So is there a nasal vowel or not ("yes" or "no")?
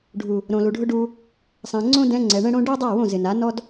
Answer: yes